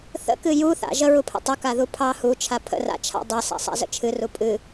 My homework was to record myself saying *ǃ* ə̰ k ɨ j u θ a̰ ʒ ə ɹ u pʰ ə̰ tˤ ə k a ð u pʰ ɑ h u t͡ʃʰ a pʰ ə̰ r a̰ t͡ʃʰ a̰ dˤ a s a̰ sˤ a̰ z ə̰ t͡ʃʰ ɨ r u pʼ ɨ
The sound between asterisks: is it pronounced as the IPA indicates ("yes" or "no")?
no